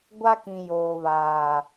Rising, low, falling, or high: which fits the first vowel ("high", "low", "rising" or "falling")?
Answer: high